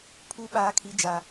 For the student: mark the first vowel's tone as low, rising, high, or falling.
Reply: high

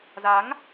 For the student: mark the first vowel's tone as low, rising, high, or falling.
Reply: rising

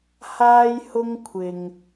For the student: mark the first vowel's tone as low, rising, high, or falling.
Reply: high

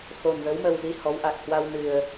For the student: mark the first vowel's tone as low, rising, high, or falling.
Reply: low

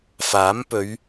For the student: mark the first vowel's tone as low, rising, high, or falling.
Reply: rising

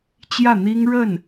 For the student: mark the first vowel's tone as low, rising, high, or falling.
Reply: falling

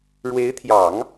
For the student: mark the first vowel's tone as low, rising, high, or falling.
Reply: rising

